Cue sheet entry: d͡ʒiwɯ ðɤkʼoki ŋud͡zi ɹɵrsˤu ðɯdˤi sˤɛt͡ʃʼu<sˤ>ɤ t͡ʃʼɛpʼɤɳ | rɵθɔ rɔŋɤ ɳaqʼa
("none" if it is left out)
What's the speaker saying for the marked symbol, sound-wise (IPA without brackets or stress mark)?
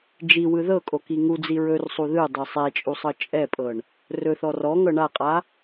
sˤ